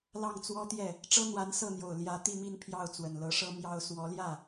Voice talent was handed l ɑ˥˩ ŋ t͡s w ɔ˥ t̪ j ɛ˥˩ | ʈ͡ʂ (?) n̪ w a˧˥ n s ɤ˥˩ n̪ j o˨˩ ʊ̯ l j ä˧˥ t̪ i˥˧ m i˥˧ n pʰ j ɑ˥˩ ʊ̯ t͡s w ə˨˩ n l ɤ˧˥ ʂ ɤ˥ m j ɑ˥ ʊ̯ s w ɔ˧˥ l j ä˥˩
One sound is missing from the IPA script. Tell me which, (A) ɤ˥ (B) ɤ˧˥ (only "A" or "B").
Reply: A